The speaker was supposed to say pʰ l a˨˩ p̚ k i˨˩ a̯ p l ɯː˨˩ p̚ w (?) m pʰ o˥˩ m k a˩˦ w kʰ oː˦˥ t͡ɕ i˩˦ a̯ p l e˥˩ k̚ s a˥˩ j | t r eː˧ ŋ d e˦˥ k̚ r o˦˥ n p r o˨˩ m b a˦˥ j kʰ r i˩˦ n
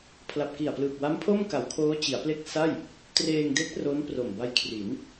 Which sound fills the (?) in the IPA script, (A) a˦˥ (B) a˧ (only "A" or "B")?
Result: A